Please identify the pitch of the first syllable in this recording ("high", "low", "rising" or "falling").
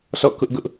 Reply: falling